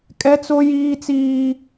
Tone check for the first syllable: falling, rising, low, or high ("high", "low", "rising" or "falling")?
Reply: high